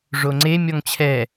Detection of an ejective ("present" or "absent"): absent